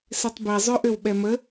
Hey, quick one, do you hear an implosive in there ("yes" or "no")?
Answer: yes